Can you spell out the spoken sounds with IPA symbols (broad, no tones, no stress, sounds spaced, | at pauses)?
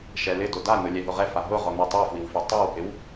ʃ ɛ l ɪ d o d a n ʊ lʲ ɛ ɦ ʊ ʁ ɛ f a ɦ ʊ ʁ ɔ n u tˤ u f w i w f ɛ tˤ ɛ w h ɪ w